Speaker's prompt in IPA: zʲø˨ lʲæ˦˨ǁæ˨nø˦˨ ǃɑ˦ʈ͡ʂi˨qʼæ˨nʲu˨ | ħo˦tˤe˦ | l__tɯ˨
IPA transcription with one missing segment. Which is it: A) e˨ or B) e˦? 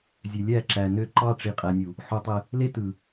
B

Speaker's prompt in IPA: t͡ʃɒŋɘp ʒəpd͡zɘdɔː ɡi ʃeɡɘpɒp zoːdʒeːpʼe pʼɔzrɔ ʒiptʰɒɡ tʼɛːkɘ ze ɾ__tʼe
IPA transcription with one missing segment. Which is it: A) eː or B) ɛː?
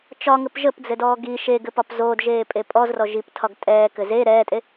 B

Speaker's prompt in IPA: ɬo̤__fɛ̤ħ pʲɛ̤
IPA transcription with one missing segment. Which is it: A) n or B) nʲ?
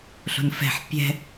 A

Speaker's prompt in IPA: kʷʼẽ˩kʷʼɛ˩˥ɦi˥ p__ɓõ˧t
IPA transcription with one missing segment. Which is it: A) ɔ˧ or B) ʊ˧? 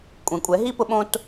B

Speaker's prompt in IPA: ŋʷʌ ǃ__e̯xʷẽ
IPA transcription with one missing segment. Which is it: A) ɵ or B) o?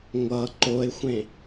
B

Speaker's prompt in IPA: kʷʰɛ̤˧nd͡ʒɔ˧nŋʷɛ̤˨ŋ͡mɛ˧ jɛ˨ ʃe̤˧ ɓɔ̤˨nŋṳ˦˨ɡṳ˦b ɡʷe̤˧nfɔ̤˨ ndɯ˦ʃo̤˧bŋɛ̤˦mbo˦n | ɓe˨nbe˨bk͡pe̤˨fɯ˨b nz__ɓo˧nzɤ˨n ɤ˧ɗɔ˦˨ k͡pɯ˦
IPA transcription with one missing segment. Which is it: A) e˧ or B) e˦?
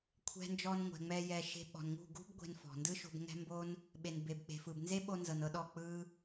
B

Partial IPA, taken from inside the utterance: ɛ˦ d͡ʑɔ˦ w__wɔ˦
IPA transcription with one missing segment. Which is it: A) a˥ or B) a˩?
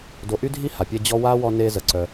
A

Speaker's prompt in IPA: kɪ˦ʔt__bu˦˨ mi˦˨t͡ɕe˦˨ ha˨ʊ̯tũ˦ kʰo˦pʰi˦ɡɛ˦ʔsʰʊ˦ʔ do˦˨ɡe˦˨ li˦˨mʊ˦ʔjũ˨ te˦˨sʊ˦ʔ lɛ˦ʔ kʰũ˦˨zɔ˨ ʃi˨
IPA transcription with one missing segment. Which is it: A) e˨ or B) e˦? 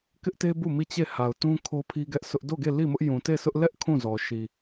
B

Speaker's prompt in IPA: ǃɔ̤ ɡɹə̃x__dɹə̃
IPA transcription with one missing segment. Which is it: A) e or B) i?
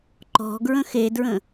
A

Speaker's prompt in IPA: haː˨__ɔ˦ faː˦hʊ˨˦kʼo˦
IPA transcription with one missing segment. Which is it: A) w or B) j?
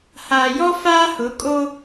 B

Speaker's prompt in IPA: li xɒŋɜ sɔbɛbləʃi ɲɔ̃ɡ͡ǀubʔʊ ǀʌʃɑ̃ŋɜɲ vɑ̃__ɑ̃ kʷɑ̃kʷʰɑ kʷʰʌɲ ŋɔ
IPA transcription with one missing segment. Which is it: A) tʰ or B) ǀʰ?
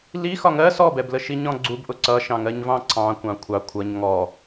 B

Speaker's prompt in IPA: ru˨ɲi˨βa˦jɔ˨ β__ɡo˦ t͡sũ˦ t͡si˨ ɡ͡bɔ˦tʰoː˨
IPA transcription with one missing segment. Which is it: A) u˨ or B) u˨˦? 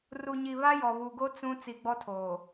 A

